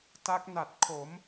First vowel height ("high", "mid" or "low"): low